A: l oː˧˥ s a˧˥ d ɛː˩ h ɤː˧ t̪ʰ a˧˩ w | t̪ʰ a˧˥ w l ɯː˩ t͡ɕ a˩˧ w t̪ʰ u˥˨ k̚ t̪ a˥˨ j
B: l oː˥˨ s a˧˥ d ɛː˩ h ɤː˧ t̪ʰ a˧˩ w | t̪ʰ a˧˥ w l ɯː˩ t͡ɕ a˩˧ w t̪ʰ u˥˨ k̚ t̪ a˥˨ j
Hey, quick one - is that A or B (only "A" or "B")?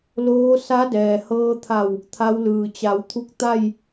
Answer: A